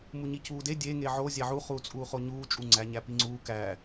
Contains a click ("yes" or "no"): yes